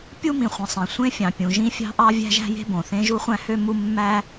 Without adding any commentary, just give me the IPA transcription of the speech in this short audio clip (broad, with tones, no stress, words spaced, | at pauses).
pʲu˥mĩ˩χʷĩ˩ sˤẽ˩sʷẽ˥fʲɑ̃˩ pʲũ˩ ʒĩ˥fʲɑ̤˥ʔɑ˥ vʲæ̤˥ʒæ̤˥je̤˥bõ˩ θẽ˥ʒu˥χʷæ̃˥hø˥ mu˥ mːæ˥